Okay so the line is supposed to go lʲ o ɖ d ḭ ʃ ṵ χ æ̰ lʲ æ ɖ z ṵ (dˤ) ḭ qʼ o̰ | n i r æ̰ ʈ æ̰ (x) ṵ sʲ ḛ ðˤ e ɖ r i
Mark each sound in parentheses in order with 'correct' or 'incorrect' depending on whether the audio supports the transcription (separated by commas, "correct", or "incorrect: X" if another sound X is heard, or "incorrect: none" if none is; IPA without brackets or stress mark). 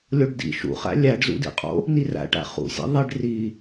incorrect: d, incorrect: χ